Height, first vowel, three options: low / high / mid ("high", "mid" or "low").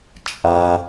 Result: low